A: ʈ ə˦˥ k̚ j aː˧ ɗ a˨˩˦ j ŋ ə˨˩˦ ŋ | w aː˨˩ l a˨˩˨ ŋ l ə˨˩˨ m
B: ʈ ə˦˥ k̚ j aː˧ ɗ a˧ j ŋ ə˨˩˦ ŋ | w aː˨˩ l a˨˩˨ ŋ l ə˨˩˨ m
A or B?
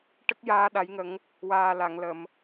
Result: A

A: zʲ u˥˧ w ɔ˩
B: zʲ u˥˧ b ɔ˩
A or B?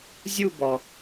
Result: B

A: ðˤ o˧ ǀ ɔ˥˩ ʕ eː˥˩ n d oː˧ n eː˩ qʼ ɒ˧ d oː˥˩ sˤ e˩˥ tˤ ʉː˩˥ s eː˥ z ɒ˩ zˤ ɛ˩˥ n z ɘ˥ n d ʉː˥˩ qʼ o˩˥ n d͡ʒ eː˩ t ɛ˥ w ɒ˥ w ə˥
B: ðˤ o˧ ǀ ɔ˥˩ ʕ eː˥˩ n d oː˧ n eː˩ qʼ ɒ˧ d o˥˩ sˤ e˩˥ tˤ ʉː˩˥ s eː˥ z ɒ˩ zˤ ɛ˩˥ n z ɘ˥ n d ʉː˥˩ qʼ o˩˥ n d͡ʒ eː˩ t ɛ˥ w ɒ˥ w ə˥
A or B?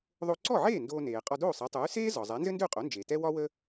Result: A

